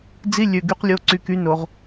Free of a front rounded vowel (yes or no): no